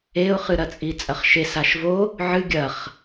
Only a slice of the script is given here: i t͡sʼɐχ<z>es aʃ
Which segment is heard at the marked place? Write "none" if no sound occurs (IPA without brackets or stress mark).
ʃ